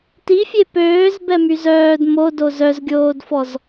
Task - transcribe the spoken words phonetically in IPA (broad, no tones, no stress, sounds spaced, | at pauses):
t i fʲ e p øː z b ɛ m y z œː d m o d o z œ z ɡʲ oː d f ɔ z